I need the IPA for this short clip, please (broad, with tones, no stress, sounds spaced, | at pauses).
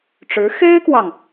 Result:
ʈ͡ʂ ɻ̩˧˥ x e˥ ɪ̯ k w ɑ˨ ŋ